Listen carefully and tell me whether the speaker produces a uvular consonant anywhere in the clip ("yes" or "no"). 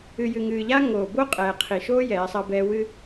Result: yes